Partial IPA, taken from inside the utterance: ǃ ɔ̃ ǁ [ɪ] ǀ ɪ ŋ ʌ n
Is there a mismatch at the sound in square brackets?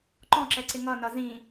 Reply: yes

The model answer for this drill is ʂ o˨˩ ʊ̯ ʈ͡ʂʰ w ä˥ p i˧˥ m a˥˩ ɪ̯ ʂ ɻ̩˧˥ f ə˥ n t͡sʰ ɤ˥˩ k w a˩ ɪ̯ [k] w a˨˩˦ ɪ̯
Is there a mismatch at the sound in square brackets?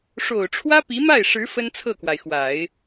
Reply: yes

